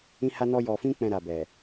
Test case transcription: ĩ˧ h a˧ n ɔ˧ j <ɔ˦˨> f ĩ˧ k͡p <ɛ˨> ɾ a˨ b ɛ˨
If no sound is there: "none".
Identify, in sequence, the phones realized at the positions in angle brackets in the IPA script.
ɔ˨, ɛ̃˨

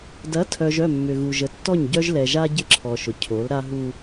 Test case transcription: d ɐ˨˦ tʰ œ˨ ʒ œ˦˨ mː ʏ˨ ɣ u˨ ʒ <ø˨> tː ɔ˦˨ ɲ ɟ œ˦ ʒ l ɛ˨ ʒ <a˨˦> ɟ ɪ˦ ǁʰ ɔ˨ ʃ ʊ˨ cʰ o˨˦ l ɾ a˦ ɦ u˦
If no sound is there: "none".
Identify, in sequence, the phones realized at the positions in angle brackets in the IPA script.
ə˨, a˦

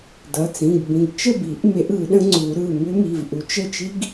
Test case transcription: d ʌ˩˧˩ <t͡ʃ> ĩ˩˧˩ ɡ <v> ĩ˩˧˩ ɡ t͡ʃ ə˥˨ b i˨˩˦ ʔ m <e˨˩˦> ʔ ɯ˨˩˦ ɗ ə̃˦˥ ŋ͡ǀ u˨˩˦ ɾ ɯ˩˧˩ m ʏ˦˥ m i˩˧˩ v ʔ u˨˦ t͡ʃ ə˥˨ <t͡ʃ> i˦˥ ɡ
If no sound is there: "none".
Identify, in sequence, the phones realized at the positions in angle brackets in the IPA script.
t͡s, b, e˨˩˦, t͡ʃ

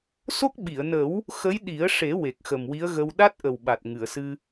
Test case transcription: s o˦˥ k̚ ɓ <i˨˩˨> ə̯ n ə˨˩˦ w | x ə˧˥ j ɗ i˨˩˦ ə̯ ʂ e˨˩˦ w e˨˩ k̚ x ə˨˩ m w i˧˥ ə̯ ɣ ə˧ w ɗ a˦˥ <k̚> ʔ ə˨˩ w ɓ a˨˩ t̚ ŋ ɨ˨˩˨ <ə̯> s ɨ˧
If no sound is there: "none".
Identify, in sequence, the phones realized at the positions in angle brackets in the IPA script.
i˨˩˨, t̚, ə̯

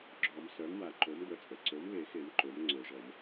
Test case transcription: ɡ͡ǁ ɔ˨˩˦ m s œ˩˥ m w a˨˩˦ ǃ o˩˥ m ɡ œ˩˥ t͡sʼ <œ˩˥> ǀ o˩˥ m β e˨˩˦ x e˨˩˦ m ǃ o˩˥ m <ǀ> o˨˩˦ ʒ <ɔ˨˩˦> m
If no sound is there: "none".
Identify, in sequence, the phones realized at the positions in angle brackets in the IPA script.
ə˩˥, ŋ͡ǀ, ɔ˨˩˦

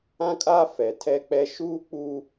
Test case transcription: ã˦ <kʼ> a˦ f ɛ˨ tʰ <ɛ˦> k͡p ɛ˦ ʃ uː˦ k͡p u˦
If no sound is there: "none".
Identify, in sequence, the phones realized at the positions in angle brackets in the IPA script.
kʼ, ɛ˦

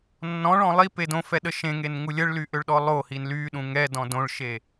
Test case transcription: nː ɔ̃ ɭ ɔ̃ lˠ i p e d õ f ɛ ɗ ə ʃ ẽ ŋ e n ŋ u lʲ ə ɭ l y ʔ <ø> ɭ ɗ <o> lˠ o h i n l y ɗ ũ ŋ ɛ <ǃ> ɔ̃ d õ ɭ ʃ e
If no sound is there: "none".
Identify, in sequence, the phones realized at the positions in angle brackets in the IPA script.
ø, ɔ, d

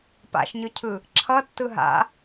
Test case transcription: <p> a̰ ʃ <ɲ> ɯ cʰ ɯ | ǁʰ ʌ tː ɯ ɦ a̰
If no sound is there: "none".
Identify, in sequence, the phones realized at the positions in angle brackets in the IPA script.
p, ɲ

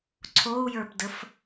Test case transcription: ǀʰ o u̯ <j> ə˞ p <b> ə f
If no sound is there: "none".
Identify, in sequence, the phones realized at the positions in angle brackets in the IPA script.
j, d

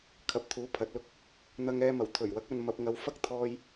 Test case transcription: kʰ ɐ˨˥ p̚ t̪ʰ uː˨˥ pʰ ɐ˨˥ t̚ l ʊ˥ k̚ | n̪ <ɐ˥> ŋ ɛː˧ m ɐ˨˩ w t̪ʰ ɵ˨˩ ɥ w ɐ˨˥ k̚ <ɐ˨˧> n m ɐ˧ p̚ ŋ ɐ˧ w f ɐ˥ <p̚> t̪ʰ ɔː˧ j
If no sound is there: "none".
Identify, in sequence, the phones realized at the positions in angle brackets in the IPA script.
ɐ˧, ɐ˨, k̚

